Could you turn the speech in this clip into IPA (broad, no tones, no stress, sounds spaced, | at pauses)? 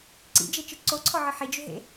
ǀ ḭ d͡ʒ e t͡ʃ ɯ ǀ o ǀʰ ɔ ʕ ɯ ħ i d͡ʒ ʏ ɦ ḛ